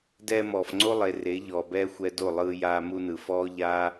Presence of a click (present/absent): present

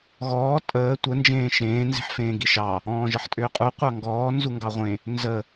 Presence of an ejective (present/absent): present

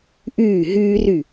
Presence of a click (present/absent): absent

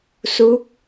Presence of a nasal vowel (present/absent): absent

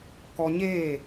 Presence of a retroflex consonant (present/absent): absent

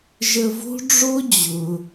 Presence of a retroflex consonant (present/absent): present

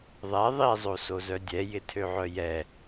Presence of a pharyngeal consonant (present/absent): present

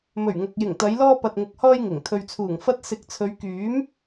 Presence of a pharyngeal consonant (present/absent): absent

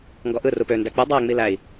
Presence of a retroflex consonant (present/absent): absent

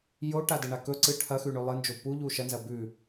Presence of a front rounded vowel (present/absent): absent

